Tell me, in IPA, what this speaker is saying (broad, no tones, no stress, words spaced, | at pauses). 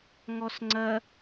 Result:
ŋɔsŋ͡ǀɐ